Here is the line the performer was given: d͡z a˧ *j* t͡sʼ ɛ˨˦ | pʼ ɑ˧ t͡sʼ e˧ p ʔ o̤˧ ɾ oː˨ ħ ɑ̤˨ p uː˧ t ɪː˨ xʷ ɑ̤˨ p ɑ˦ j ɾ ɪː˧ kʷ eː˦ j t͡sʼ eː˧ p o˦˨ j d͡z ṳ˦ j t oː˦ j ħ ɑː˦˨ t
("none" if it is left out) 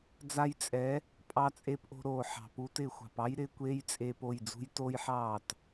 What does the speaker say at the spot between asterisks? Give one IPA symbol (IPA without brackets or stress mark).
j